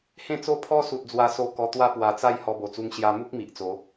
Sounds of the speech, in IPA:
h ẽ˥˧ t͡s o˥˧ pʰ ɔ˦ s u˨ t̚ d͡z w a˧ s o˧ k ɔ˧ t̪ w a˦ p w a˨˩ t͡s a˥˧ j h ɔ˧ b o˨˩ t͡s u˧ ŋ ɕ j a˧ m u˦ k̚ m i˨ ʔ t͡s o˨˦

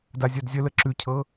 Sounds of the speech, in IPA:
d a zʲ ɜ d zʲ ə l ə ǁ ʉ cʰ ɤ

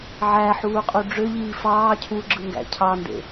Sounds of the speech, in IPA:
ʕ æ ħ uː qʼ u ɖ͡ʐ ø ʎ iː f ɑː cʰ u ɡ͡ǁ ɯ ŋ ɡ æ̰ cʰ ɑ n d ḛ

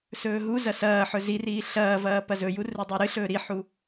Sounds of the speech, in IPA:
s ɵː ɦ u z ɐ s ɐː ħ ɵ z i r iː ɬ ɐː v ɐː p ɐ z ɵ j u r ɨ dˤ o ɾ ɨ ɬ ɵː ɾ i ħ u

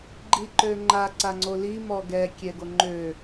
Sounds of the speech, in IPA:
ɡ͡ǃ i ǃ ø ŋ͡ǃ a ǀ a ŋ͡ǀ o l i m ɔ ɡ ɛ kʲ ɛ ɡ o ŋ͡ǃ ø

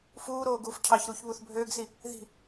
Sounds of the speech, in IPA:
f uː ɾ oː ɡ uː f cʰ ɑ ç ɾ uː ç β u θ bʱ øː ɡ s i | ð i̤

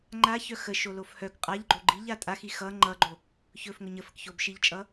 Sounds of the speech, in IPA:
ŋ͡ǃ a ç œ x ə ʃ o l o f h œ k qʼ a ʎ ɡ͡ǃ o ɡ͡ǃ i ʎ a tʼ a x i x ʌ ŋ͡ǃ ʌ ɡ͡ǃ o | ç ɵ f ŋ ɵ ɲ ə f ə k ç o b ʃ i ʎ t͡ʃʼ ʌ

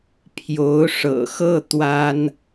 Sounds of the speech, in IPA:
pʰ j o˧˥ ʊ̯ ʂ ɤ̰˨˩ x ɤ˥˩ t̪ w a˥ n

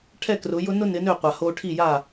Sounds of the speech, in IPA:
ʈʰ ɛ˥˩ k r ʊ˩˥ j ʊ˩˥ n ʊ˥ n ɪ˩˥ n ø˥˩ qʷ a˩ h o˧ ʈʰ i˥˩ j a˥˩

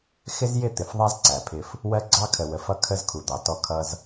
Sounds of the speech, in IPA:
x ɪ˦ z j ɪ˦˨ t̪ ɪ˨ f ðˤ ɛ˦ z ǀ æ˨ pʰ ɪ˦ f | w ɜ˦ ɡ͡ǀ ɑ˦ kʰ ə˨ w ə˨ f ʌ˦ kʰ ə˦ z kʰ u˨ d̪ ɑ˨ t ɔ˦ kʰ ʌ˦ z

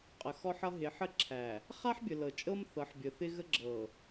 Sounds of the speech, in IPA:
qʼ ə˨ x ɔ˦ ħ ʌ˦ ɦ ɪ˨˦ ħ ə˦ ǁʰ æ˨ | χ a˦ ħ bʲ ə˨ l ɤ˨ t͡ʃʼ ɤ˦ m θ ɤ˨˦ ħ bʲ ə˨ θ ɪ˦ ɣ ə˦ ɡ͡ǁ ɤ˨

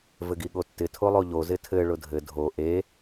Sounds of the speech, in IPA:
v ɘ ɡ i ɠ o tː ɪ tʰ o lˠ o ʎ o z ɪ tʰ ɘ ɭ ʊ dʱ ɘ dʱ o ʔ e

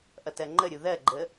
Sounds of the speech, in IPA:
ʔ ʌ t ɜ ŋ͡ǃ ə ɾʲ u ð ɜ ɡ͡ǃ ə

